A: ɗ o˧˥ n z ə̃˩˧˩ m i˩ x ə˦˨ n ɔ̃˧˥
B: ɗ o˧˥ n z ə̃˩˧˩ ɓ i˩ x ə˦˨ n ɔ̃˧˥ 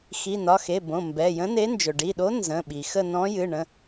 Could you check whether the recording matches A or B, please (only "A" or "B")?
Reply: B